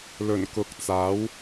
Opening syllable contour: low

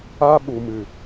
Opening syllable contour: high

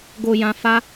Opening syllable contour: low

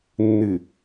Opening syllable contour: low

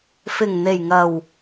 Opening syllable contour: low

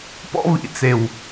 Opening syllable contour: high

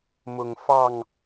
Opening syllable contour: low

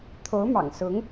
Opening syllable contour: rising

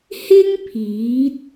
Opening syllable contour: high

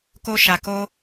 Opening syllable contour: high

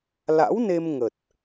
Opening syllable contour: rising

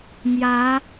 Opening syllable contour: rising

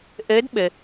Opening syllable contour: rising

